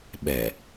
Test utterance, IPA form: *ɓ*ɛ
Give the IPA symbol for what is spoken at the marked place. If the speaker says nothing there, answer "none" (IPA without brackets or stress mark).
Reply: ɓ